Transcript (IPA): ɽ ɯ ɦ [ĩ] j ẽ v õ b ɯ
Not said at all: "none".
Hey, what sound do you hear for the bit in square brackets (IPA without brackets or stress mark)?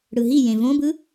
i